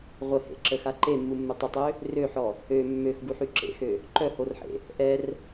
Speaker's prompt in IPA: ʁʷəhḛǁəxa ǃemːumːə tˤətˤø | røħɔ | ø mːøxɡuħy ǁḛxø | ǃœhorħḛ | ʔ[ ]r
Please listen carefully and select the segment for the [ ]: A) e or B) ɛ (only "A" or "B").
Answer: B